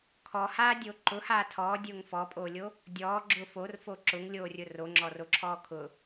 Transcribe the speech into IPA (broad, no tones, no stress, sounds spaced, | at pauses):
kʰ ɔ h aː dʲ o ǃ ʊ h aː tʰ ɔː dʲ ʊː ŋ f ɔ pʼ oː lʲ o | dʲ ɔː ɡ͡ǁ ʊ f o r f o ǁ ʊ ŋ lʲ oː rʲ ʊ r o ŋ͡ǁ ɔ r o ǁʰ ɔː kʰ ʊ